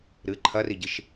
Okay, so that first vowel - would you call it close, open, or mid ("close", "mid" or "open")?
close